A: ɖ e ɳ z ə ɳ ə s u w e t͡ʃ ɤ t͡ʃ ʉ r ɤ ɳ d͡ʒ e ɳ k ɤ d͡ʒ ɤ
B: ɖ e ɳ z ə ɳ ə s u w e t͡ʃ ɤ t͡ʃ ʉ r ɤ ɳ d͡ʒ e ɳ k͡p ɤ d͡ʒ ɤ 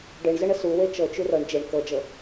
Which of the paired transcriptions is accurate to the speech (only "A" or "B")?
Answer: A